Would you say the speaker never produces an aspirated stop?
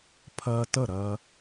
no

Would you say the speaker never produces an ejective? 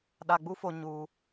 yes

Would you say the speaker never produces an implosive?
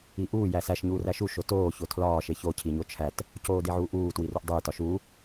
yes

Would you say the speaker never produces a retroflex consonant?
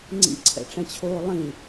no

